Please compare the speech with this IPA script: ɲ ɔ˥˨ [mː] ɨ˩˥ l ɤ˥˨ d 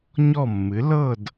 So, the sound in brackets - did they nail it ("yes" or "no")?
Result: yes